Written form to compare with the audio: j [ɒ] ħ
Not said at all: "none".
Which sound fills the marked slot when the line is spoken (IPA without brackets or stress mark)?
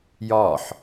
ɒ